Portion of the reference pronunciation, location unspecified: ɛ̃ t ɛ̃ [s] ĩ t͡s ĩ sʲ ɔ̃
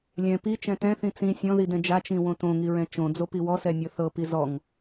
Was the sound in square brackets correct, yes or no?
no